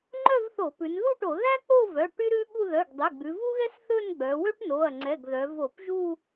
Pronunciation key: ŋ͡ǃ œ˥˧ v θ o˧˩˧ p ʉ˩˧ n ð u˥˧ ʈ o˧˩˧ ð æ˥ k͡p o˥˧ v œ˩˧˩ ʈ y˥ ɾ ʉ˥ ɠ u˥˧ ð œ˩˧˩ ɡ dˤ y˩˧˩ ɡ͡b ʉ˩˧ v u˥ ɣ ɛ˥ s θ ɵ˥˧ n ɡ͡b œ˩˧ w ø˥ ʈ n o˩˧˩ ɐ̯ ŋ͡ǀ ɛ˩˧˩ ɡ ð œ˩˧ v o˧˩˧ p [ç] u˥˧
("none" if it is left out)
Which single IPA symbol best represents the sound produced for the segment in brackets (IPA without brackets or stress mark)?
ʒ